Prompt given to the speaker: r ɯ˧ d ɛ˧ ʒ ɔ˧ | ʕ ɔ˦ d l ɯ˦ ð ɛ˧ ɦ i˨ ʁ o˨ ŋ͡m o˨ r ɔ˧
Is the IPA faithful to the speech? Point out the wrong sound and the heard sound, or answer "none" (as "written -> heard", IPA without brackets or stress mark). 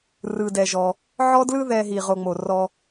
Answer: none